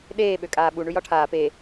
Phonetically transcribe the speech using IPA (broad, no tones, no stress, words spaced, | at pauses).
ɗeː ɓøkʼaːɓu ɳʉjɒʈʰaː pe